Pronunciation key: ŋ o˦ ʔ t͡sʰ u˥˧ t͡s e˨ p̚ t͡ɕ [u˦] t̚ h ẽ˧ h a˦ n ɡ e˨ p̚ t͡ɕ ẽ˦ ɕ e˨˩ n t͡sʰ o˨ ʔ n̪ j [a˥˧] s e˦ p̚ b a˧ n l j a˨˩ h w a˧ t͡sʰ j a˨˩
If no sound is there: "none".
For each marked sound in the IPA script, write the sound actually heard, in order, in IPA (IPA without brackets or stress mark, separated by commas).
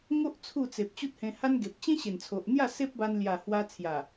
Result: u˦, a˥˧